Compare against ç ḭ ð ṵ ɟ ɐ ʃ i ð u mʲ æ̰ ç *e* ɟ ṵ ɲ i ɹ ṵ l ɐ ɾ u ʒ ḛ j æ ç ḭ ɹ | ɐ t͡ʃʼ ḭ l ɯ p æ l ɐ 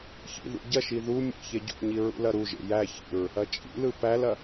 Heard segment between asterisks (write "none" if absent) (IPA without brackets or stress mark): e